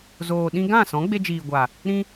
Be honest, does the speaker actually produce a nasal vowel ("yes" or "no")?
yes